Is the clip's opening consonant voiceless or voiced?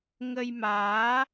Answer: voiced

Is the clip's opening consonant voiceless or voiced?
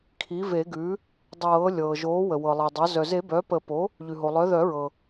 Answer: voiceless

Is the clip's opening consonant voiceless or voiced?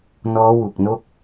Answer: voiced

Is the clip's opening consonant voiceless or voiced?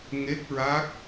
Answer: voiced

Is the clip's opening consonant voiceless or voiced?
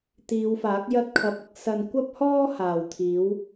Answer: voiceless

